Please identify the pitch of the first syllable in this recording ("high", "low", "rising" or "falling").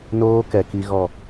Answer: high